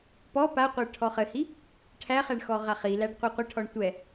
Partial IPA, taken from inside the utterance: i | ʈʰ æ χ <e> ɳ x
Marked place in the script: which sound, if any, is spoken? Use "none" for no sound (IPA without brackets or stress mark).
ɛ